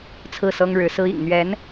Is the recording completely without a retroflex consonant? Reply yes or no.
no